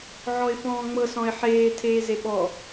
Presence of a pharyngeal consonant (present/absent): present